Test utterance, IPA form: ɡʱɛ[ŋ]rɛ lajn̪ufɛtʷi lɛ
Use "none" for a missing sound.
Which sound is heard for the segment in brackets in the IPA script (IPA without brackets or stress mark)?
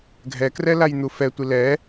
k